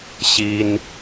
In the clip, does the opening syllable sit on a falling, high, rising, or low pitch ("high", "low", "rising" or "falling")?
high